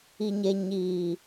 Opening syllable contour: low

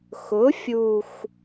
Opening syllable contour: rising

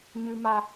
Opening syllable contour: high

